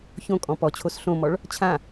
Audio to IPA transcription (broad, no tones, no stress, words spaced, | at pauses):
çõ kʼɔ̃pɔt͡ɕʰos ɬõmɔɭ | t͡ɕʰã